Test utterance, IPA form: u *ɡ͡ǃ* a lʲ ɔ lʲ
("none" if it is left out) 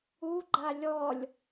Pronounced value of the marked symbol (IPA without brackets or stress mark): ɡ͡ǃ